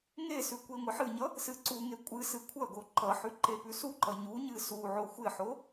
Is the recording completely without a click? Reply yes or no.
no